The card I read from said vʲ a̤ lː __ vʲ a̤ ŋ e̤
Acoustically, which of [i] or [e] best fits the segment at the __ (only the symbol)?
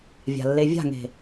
e